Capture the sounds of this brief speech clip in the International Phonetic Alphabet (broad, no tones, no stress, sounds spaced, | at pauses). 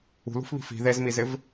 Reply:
ṳ l ṳ f β i̤ f i̤ ð e z m i z ɪ v